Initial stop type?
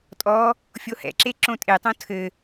ejective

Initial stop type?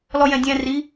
plain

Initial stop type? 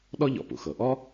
implosive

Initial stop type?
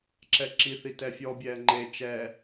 click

